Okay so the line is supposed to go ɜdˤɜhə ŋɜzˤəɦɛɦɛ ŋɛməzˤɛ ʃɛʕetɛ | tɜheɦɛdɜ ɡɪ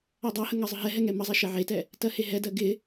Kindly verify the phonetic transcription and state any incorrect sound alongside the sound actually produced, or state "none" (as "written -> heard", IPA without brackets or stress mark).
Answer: none